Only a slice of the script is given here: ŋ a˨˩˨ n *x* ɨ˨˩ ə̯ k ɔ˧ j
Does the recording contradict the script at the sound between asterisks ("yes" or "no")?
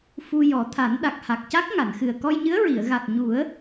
no